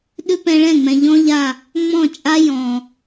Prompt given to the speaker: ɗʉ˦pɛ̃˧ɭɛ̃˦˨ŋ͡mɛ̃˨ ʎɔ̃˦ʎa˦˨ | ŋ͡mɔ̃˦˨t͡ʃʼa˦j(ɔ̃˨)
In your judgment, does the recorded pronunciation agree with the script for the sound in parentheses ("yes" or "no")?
yes